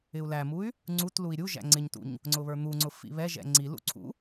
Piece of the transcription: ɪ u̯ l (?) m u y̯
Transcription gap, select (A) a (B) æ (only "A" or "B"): B